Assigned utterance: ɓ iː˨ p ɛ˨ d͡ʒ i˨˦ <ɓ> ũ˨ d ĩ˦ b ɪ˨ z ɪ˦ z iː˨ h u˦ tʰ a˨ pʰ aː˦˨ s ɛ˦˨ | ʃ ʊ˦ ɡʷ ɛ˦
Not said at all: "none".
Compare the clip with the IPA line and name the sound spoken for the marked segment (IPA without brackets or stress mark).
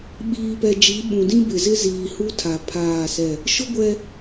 ɓ